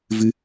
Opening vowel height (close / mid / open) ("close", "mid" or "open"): close